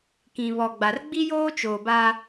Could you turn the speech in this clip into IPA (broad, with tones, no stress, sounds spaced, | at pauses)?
k ĩ˨ β ɔ˨ ɡ͡b a˨ r ɡ͡b i˦ j oː˦ t͡ʃ oː˨ b a˦